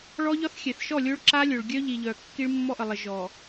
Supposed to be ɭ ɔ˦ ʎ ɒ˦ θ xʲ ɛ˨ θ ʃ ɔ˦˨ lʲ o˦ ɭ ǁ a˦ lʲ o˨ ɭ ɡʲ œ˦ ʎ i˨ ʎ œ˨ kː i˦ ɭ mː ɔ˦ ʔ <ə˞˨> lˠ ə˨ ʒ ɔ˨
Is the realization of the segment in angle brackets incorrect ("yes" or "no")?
yes